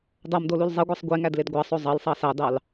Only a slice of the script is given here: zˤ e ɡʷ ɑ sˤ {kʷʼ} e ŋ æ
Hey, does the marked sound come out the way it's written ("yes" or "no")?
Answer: no